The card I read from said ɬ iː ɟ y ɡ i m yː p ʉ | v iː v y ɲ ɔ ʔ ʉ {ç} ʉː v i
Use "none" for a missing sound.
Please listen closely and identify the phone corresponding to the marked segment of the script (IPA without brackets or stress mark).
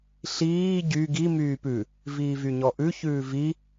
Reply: ç